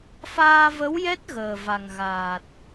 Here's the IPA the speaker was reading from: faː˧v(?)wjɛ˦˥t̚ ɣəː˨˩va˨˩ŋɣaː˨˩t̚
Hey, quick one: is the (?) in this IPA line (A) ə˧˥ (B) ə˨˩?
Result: A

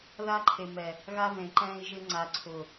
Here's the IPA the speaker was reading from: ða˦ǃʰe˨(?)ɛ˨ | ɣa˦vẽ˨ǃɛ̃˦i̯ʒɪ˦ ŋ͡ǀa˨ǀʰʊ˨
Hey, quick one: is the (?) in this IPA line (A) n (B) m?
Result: B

